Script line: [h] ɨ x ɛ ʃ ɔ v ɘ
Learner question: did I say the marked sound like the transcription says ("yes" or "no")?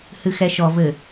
yes